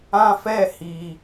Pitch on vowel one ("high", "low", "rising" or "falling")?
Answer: high